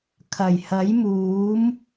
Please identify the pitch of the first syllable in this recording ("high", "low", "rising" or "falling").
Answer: low